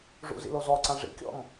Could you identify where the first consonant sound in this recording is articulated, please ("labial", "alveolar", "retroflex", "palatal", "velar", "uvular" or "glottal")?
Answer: retroflex